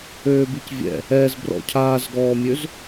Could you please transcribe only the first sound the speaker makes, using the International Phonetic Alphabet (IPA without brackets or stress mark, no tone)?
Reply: øː